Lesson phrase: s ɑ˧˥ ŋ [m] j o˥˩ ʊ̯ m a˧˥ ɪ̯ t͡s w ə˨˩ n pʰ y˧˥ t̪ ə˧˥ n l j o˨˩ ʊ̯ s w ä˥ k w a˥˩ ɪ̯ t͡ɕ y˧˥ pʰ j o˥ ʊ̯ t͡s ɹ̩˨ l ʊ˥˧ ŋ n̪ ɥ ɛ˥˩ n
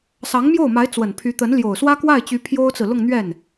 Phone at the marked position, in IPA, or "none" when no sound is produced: m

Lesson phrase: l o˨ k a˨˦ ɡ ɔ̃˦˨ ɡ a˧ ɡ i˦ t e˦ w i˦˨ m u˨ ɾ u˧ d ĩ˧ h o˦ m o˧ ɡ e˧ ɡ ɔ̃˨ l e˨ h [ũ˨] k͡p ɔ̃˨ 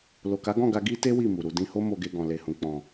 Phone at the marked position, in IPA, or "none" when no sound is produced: ũ˨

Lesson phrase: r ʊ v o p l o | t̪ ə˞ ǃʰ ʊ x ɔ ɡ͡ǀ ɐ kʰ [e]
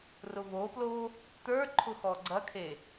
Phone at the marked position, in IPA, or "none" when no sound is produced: e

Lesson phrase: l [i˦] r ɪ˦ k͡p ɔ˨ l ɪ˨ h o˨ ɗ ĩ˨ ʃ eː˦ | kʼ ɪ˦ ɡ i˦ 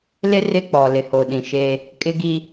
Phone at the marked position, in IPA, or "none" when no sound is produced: ɪ˦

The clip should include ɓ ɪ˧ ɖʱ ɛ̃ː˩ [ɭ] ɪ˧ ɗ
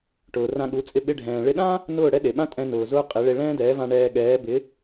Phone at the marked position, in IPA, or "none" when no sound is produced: ɭ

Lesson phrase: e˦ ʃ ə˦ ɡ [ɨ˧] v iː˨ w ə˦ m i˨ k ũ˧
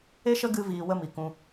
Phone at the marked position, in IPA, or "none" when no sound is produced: ɨ˧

